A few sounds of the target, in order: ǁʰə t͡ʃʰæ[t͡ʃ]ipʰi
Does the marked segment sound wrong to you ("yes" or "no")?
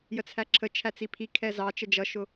yes